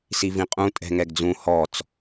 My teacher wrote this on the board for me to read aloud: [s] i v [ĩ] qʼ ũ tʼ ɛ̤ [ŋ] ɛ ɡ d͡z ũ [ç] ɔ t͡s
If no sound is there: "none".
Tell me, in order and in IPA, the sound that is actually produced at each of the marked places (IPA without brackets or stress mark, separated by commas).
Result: s, ĩ, ŋ, h